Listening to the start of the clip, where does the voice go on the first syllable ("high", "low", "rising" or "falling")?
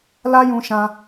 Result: high